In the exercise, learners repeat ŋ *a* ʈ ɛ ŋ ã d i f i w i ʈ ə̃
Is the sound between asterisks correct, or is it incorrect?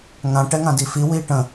incorrect